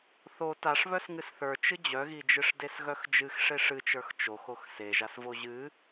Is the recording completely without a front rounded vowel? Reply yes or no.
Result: no